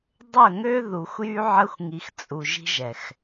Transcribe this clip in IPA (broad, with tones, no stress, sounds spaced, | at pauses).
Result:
dˤ ə˦˨ ŋ ø˦ ð u˨ xʷ j y˦ ʕ ə˦ xʷ ŋ i˨ x t͡sʼ u˨ ʒ i̤˦ ʒ ɛ˨ x